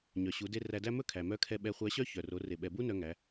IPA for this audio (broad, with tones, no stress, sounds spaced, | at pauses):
ɲ œ˩ ɕ u˩˧ d e˧ r æ˧ d æ˥ m ɵ˥ kʰ æ˩ m œ˧˥ kʰ ɛ˧ ɓ ɛ˧ χʷ æ˧˥ ɕ œ˥ ç œ˩ r o˩˧ r e˩ ɓ ɛ˩ b u˥ n œ˧ ŋ æ˩˧